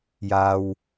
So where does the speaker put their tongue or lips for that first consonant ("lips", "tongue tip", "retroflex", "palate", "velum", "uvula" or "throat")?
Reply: palate